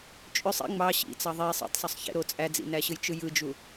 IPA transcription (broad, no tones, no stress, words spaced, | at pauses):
t͡ʃʼøsˤ ḭ ŋ͡mɑ ɕḭt͡sɑ ðˤe sˤḛtˤsˤøsˤ çḛɾo t͡sʼæd͡zḭnæɕɯj t͡ʃɯjɯd͡ʒu